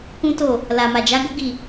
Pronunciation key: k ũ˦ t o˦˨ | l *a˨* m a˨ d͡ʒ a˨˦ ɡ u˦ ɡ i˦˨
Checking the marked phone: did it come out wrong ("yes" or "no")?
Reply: no